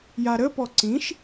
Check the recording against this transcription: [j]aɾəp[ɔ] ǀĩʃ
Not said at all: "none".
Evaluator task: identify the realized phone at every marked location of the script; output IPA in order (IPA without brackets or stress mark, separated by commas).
j, ɔ